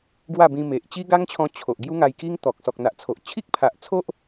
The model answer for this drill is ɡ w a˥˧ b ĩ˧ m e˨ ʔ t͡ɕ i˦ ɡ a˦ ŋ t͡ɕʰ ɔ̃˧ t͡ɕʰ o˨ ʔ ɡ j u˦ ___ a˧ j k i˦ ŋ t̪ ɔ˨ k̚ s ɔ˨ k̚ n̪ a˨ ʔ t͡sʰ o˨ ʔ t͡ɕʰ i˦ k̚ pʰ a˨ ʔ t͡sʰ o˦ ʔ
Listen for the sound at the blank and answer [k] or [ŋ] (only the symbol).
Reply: ŋ